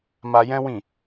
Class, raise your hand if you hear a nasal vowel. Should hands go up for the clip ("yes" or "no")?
yes